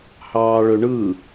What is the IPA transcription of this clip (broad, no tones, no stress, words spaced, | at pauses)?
hɑːɭøɳɯ